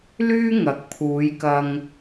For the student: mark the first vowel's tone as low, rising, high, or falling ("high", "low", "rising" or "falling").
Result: high